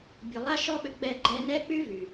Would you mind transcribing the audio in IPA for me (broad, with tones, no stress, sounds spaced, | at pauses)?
bʲ u˨ lˠ a˦ ʃ ɔ˦ ɓ ʏ˧ ɡ͡b ɛ˦˨ ɡ͡ǃ ɛ˧ n ɛ˦ k͡p y˦ v y˨